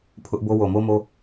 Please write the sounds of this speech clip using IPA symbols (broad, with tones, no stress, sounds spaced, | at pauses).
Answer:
pʰ ʊ˦ ʔ b o˦ w o˨ m o˦ m o˦